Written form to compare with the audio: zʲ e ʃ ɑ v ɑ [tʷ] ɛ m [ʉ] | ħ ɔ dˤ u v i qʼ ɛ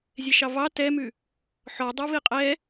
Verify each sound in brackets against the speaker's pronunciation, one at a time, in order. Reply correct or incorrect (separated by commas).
incorrect, correct